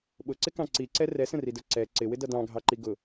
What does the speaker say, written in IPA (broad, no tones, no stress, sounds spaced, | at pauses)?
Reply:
ɓ ʊ ǀ ɪ k ɑ̃ ǀ i ǀ ɛ r ɛ s ə̃ r i d ə˞ ǀ ɛ ǀ ɪ w ɪ d ʌ d ɑ̃ ɡʱ ɑ ǃ i ɡ ʊ